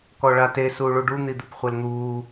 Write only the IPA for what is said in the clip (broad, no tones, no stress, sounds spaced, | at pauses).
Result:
k ɔ ɭ a t e s uː ɭ u ɖ u n̪ i d̪ ɪ p χʷ ɛ l n̪ uː